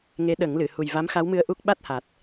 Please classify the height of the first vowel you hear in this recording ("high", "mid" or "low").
mid